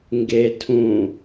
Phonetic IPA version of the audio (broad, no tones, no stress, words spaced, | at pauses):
ŋɡe tʰũ